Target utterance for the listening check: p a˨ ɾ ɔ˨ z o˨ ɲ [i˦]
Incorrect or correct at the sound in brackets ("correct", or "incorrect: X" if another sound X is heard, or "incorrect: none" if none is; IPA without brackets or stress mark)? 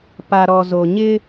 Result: incorrect: ɪ˦